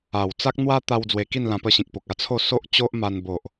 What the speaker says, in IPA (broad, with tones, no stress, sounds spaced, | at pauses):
a˨˩ w t͡s a˦ k̚ n̪ w a˦ t̪ a˧ w d͡z w e˧ k i˥˧ n l ã˧ p ə˧ ɕ ĩ˨ k̚ p o˨ k̚ a˥˧ t͡sʰ o˥˧ s o˦ ʔ t͡ɕ o˦ ʔ m a˧ n b o˨ ʔ